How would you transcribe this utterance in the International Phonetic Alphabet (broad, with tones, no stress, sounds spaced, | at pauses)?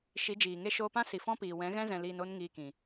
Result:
ʃ i˨˦ d͡ʒ iː˨ ŋ e˦ ʃ oː˧ p ã˦ s i˨ f ɔ̃˦ p iː˨ w ɛ̃˨˦ ɣ ɛ̃˦ z ɛ̃˧ l iː˧ n o˦ n ŋ iː˧ k ĩ˨